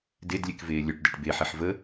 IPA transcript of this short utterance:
d e d lʲ e k v eː lʲ œ ʈ d ɛ ʈ b e ħ e ħ v ə

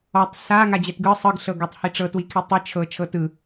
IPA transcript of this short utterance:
ɔ tˤ s a ŋ a d͡ʑ ɛ t ɡ ɯ sˤ ɯ ɡ ɬ ɤ ɡ ɔ tˤ h i ʈ͡ʂ ɤ t w i kʰ i tˤ ɯ t͡ʃʰ ɤ t͡ʃʰ ɤ t ɯ

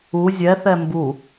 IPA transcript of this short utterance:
u zʲ ɛ θ ɛ m b u

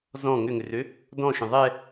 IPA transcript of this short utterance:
z ɔ̃ ŋ ʏ ŋ ʏ r ø | d ɔ̃ ʃ ə̃ ðˤ ɛ

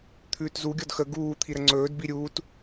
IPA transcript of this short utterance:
t̪ʰ ʉː t z u ɡʲ ɔ d x ə ɡ uː t̪ʰ i ɾ ə ŋ͡ǀ ɵː d b i ɾʲ uː t

